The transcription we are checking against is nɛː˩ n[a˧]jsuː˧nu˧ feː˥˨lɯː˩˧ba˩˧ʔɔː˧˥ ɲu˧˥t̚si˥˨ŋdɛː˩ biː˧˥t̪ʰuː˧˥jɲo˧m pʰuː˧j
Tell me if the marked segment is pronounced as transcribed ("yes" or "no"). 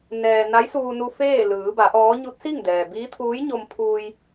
no